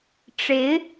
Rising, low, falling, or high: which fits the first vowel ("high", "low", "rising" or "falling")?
rising